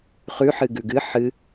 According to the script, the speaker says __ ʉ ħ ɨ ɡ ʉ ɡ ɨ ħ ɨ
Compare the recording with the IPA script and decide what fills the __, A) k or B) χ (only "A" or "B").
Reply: B